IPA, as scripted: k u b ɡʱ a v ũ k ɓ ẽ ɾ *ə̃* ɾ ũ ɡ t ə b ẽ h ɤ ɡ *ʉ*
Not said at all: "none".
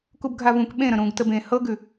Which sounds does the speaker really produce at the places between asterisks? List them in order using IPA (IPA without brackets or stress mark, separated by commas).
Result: ə̃, ʉ